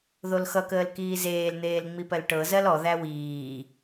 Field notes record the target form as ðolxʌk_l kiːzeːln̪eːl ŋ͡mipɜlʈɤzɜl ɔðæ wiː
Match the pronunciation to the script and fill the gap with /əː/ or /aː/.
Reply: əː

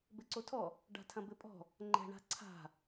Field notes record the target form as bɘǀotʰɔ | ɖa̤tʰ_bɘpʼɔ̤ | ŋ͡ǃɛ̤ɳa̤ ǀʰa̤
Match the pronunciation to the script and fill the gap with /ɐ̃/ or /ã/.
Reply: ɐ̃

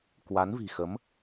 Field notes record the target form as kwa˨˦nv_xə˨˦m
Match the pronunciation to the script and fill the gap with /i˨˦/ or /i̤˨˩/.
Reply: i̤˨˩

